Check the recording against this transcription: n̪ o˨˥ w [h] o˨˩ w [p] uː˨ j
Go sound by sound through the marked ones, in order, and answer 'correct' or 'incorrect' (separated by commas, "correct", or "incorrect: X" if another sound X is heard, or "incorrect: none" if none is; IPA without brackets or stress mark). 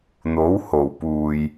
correct, correct